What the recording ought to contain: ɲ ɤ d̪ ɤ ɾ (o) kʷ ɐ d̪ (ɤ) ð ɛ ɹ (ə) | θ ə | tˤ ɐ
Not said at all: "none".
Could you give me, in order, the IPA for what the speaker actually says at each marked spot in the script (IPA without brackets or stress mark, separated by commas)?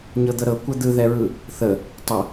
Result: ɤ, ɯ, ɯ